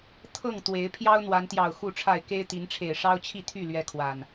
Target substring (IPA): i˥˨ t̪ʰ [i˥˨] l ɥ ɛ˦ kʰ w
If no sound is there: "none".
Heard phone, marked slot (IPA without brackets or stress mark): y˥˨